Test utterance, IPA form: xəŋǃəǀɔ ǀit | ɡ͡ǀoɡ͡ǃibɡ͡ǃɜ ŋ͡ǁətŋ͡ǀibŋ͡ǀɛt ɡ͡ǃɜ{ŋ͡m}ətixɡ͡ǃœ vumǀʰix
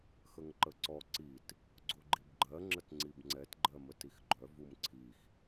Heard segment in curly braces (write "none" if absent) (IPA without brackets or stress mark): m